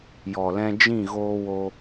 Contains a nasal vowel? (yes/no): yes